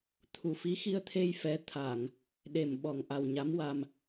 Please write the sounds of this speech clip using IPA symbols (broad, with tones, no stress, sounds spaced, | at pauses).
t̪ʰ u˨˩ f i˧˥ x i˧ ə̯ t̪ʰ e˧ j f ɛ˧˥ t̪ʰ a˨˩˨ ŋ | ɗ e˨˩ m ɓ ɔ˨˩ ŋ ʔ a˨˩ w ɲ a˧˥ m w a˧ m